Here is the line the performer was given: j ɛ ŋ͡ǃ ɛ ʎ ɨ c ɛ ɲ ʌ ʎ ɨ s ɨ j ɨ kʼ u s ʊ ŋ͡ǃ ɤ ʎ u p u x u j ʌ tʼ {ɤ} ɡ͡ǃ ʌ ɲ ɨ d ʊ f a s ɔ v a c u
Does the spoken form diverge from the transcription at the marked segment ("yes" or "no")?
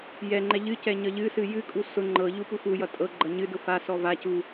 no